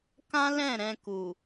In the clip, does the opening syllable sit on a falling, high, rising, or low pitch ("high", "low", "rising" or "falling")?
high